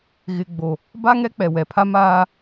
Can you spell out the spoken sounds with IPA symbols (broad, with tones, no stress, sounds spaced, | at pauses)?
ɣ ɪ˨ ɡ͡b o˨ | b a˦ ŋ ɛ˦ k͡p ɛ˨ w ɛ˨ pʰ a˦ m aː˦